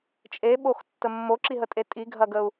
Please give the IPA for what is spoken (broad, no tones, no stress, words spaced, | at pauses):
t͡ʃʼeɓoxtːə mːoǁiɦətʼe tʼiɡʱɐɡəu̯